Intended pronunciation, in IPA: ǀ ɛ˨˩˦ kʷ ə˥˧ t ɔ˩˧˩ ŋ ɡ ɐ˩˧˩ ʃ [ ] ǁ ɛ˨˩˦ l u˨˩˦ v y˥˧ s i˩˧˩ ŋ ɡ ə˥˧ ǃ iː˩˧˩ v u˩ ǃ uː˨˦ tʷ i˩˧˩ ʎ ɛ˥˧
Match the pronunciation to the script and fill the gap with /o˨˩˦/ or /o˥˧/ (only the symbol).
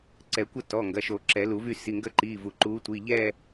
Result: o˨˩˦